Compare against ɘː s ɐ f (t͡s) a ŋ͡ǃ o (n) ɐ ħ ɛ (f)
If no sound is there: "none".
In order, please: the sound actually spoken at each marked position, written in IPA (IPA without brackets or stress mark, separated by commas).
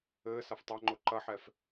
tˤ, ǃ, f